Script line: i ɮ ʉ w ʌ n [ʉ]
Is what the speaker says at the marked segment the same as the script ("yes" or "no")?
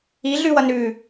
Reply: yes